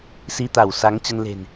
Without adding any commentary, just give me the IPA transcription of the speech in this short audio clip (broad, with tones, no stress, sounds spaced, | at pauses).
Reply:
s i˧ t̪ a˧˩ w s a˨˦ ŋ t͡ɕ ə˧ n l e̤˨˩ n